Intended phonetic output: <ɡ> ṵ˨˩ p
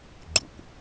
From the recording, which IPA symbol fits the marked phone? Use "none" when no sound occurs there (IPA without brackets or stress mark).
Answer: ɡ͡ǃ